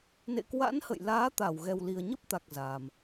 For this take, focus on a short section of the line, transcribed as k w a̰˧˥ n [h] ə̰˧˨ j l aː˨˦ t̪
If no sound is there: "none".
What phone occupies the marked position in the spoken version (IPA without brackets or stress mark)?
h